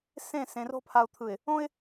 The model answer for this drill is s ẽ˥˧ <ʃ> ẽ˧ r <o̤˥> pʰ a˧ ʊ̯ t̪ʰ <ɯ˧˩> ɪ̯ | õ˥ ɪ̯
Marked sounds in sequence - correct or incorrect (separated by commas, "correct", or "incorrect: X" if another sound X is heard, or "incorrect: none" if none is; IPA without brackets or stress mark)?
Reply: incorrect: s, correct, correct